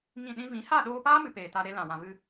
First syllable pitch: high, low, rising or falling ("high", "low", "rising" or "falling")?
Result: falling